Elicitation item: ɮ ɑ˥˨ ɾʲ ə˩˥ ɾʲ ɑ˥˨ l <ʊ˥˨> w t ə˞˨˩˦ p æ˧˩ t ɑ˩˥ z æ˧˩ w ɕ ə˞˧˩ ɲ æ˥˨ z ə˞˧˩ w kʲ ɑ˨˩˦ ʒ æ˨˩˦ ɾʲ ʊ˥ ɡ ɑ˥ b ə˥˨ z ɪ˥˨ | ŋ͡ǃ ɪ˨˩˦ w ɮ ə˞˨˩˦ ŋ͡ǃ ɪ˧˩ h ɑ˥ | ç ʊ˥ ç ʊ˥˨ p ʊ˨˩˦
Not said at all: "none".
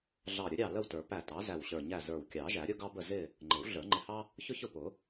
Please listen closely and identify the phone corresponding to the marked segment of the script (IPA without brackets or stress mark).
ə˥˨